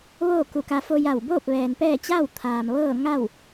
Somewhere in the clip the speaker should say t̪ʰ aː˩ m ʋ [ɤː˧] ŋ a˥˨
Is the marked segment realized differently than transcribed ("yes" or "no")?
yes